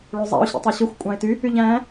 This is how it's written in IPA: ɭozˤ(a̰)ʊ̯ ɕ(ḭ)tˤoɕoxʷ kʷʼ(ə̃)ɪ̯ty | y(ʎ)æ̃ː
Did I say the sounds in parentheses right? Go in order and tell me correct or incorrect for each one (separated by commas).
incorrect, correct, incorrect, correct